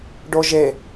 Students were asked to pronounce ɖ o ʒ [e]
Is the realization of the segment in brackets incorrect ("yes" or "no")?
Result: no